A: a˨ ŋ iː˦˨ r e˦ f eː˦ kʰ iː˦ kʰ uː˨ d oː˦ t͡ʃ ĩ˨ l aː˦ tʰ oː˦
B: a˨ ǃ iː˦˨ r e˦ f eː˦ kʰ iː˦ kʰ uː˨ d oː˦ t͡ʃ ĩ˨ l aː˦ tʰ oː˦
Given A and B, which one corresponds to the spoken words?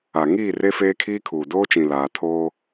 A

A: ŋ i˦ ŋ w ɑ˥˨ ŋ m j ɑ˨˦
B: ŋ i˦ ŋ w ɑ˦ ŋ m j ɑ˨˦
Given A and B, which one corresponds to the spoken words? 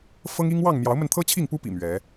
A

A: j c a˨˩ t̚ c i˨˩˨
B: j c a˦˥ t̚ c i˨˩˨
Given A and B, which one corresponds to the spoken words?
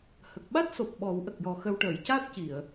B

